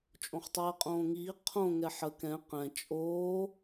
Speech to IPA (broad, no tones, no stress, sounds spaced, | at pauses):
t͡ʃʼ õ χ tˤ ɛː qʼ õː ŋ iː qʰ õ ŋ ɛ ħ ə k ɛ̃ q ɛ̃ t͡ʃʼ oː